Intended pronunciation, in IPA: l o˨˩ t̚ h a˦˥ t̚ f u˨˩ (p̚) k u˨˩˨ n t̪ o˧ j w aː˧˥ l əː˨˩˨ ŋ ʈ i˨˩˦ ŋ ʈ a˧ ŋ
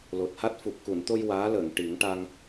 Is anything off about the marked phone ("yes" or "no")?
no